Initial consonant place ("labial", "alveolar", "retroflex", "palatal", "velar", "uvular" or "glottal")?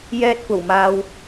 palatal